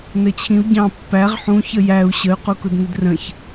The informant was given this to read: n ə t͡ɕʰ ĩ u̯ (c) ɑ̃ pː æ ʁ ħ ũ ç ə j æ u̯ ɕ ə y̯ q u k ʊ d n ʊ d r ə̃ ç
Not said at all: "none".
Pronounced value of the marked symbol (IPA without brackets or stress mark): ɟ